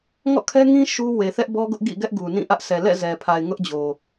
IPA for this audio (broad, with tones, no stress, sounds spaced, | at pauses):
ŋ ɔ̰˦˨ kʰ ɛ˦ ŋ ĩ˦ ʃ u˦ w e˨ θ ɛ˦ ʔ b ɔ˦ ɡ ʊ˦ ʔ ɡ ḭ˦˨ ɡ ɛ˦ ʔ ɡ u˨ n ĩ˦˨ ʔ ä˦ ʔ sʰ ɛ˨ l ɛ̰˦˨ z ɛ˨ pʰ a˨ ɪ̯ ŋ ʊ˦ ʔ d͡ʑ o˨